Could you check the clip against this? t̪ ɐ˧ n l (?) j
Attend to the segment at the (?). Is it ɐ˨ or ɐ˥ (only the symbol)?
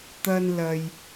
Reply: ɐ˨